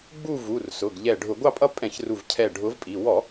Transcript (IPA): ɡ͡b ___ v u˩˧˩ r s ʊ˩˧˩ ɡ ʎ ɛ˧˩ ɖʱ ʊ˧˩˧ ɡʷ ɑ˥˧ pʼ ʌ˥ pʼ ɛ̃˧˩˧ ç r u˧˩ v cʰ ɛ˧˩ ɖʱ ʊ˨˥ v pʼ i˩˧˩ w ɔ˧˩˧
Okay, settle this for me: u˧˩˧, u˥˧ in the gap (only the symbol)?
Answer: u˥˧